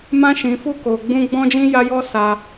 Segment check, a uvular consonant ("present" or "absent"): absent